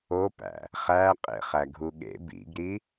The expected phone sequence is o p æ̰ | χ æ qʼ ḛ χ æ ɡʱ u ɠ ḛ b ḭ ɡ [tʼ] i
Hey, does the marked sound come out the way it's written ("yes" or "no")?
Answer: no